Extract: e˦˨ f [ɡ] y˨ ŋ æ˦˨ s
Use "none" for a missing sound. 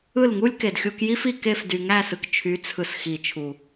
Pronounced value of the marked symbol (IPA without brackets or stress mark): d